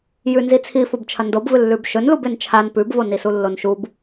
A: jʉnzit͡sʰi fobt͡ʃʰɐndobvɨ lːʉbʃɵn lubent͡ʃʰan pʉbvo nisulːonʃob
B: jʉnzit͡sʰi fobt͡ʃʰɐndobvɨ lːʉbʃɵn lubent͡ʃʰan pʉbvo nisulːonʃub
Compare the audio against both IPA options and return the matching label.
B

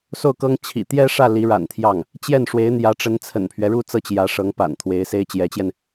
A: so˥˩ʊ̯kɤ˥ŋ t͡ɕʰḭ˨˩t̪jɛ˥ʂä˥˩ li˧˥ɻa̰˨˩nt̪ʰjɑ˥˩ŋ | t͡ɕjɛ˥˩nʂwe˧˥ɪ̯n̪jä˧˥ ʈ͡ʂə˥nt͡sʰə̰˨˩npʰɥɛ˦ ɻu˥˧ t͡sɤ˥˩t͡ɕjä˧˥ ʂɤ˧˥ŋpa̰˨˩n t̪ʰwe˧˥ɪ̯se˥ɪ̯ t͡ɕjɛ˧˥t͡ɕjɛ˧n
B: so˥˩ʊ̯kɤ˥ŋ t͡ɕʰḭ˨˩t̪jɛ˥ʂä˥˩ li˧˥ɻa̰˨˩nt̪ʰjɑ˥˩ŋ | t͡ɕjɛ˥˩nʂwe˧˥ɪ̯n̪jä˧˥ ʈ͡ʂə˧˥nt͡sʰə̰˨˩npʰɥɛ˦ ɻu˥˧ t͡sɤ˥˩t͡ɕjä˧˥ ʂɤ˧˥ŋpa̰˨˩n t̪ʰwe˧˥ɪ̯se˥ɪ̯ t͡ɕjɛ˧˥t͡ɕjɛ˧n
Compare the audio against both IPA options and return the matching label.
B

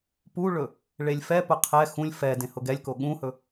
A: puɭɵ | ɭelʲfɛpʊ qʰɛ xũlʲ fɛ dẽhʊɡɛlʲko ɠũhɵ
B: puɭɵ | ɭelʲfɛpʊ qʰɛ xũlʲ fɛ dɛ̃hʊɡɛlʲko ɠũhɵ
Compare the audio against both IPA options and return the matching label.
A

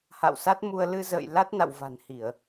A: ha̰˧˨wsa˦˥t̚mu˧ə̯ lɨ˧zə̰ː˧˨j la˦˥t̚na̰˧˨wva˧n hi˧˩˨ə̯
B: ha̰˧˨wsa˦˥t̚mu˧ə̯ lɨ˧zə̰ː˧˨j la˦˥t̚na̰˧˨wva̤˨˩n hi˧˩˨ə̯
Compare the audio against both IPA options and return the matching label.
B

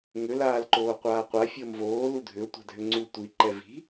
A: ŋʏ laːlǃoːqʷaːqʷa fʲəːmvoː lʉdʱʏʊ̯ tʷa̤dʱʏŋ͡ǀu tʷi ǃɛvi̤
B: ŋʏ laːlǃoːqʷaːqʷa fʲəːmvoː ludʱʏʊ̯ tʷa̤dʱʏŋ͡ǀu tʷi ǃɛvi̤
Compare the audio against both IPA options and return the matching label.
B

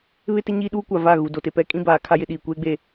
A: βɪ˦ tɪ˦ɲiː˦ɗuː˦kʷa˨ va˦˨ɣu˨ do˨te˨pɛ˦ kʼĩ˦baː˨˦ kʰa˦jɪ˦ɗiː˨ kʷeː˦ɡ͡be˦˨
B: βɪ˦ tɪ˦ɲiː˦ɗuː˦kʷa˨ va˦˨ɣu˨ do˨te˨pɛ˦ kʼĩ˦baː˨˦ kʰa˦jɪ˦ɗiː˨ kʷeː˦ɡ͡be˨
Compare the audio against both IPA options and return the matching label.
A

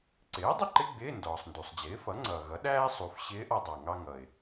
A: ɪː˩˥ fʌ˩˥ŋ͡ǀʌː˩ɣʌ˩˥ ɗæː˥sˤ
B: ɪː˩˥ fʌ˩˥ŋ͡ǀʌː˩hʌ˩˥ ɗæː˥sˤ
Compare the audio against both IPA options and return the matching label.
A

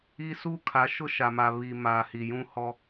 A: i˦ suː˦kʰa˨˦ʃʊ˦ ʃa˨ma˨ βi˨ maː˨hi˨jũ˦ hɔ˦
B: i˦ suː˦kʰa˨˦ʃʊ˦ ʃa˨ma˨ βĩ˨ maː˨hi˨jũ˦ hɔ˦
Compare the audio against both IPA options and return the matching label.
A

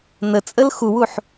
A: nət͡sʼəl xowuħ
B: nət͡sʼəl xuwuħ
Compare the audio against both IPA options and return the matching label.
B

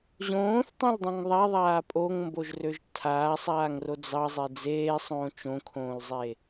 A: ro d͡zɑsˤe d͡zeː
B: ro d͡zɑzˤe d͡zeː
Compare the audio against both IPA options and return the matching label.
B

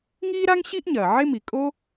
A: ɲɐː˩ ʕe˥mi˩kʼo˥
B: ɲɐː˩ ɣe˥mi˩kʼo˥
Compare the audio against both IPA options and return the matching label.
A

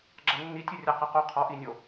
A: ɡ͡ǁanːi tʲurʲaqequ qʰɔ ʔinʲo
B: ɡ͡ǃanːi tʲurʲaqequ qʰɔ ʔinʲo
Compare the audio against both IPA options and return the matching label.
A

